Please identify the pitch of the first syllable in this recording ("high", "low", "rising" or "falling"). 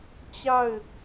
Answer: falling